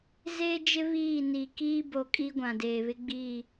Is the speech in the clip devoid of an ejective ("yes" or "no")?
no